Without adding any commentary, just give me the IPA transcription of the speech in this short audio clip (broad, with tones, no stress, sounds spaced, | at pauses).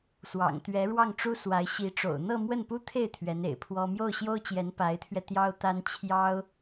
s w ɑ̰˨˩ ŋ t̪ ɥ ɛ˧˥ ɻ w ɑ˥˩ ŋ ʈ͡ʂ u˥ s w a˧˥ ɪ̯ ɕ i˧˥ ʈ͡ʂ o̰˨˩ ʊ̯ n̪ ɤ˥˧ m w ə˥˩ n p u˥ t̪ʰ e˥˩ ɪ̯ t̪ʰ ɥ ɛ˧˥ n ḛ˨˩ ɪ̯ pʰ w ɔ˥ m j o˥˩ ʊ̯ ɕ j o˥ ʊ̯ t͡ɕ j ɛ˧˥ n p a˧˥ ɪ̯ t̪ʰ ɥ ɛ˧ t̪ j ɑ˥ ʊ̯ t̪ a˥ n t͡ɕʰ j ɑ˥ ʊ̯